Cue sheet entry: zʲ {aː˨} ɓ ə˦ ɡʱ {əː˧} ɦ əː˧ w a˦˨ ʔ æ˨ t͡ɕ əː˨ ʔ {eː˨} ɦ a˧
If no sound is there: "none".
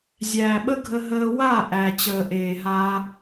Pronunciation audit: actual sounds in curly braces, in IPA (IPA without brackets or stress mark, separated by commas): æː˨, ə˧, eː˨